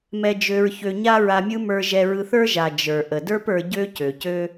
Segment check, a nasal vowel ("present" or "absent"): absent